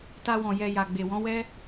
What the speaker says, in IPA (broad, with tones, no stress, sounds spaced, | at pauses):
t a˧ w ɔ̃˨ j ɛ˧ j a˨ ɡ͡b e˨ w ɔ̃˨˦ w ɛ˦